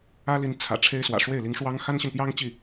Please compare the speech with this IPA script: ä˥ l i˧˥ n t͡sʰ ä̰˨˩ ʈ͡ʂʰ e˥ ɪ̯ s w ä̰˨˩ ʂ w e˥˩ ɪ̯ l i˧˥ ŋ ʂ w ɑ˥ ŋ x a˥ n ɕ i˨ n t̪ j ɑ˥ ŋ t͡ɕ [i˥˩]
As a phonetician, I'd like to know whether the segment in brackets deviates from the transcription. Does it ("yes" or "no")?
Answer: no